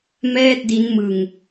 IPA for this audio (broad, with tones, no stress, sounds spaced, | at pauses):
m ɛː˥˩ t̚ d i˦˥ n m ɯ˧ ŋ